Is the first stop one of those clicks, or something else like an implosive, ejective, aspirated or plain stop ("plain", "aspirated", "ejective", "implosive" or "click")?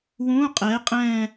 ejective